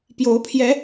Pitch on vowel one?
rising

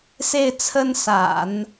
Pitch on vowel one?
falling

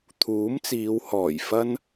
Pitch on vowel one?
rising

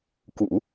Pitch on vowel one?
low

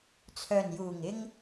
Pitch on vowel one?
low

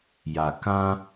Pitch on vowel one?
low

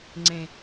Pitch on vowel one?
low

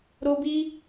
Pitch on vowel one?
high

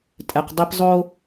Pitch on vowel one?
low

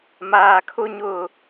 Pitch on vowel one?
low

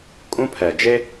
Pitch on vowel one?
high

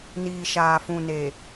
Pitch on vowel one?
low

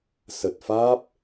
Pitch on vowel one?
low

